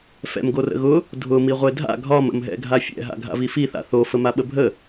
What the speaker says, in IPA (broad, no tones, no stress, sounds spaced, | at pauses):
f ɛ̰ m ɡ o r ə̰ ɣ ʊ | dʱ ʊ m i ʁʷ e dʱ a̰ ɡʱ ɒ m ə̰ m ɦ ɛ̰ ɡʱ a fʲ ɛ̰ ɦ a̰ ɡʱ a̰ v i f i θ a̰ θ o f ə m a ɓ ə bʱ ə